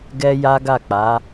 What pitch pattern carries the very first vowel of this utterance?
high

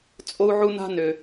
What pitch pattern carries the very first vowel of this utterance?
high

